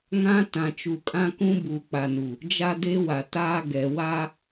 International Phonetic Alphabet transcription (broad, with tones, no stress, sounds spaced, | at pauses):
ŋ ã˦ t ã˨ t͡ʃ u˨ kʼ ã˦ k ũ˦ b uː˨ k͡p a˨ n u˨ | d͡ʒ a˦ d e˦ w a˨ t aː˦ ɡ ɛ˨ w a˦